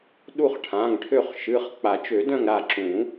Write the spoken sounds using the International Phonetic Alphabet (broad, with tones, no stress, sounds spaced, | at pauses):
ɗ u˦˨ χ ʈʰ ã˩˧˩ ŋ ʈʰ ø˦˨ χ ʃ ɨ˩˧˩ χ k͡p a˨˩˦ t͡ʃ ø˨˩˦ d œ̃˦˨ ŋ ɾ a˦˨ ǁ ũ˨˩˦